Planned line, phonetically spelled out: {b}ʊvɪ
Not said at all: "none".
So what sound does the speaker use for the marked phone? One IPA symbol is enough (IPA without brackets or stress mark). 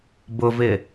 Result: b